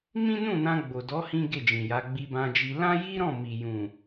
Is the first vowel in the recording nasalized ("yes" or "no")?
yes